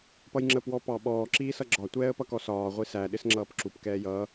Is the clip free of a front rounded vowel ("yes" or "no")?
yes